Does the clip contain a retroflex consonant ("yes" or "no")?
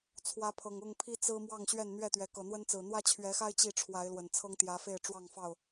yes